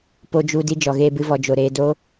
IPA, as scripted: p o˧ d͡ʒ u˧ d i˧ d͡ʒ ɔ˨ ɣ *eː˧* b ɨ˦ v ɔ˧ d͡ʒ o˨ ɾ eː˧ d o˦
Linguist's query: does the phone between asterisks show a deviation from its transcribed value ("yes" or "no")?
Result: no